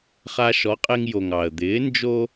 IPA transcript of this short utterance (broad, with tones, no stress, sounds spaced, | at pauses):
χ a˧ ʃ ɔ˩˥ qʼ e˧ ŋ j o˩ ŋ ɑ˩ ə̯ d̪ ɪː˩˥ n d͡ʒ o˥